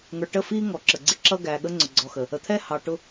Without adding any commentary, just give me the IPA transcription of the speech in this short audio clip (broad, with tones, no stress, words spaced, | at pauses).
ŋə˞˨ʈə˦˨fiː˦ ŋɔ˨ ǁə˨ɡ͡ǀɪ˦ ǁʌ˦ɡæ˨ɠə˦ ŋ͡ǀʊ˨ɡ͡ǀɔ˨xə˨ | ə˨t̪ʰɛː˦ hɑ˨ ʈʊ˨